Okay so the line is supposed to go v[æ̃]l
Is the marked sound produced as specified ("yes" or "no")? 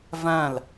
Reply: yes